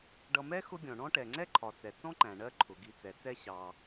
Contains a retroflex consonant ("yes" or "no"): yes